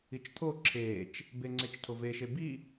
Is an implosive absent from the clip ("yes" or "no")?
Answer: yes